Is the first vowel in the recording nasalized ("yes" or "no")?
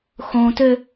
yes